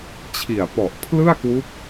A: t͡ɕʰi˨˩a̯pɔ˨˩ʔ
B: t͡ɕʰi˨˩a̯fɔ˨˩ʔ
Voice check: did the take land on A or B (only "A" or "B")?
A